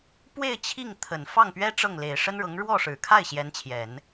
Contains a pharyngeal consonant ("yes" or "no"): no